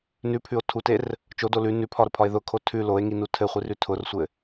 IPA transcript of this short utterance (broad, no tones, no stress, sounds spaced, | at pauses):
n ʉ pʰ ʉ o̯ tʰ u t e r | t͡ʃ o d o l ʉ n ʉ pʰ ɒ ɾ ʊ pʰ ɒ e̯ ð ʊ kʰ o tʰ ʉ l o e̯ ŋ i n u tʰ ɘ χʷ i r ʉ tʰ ʊ r sʷ ɘ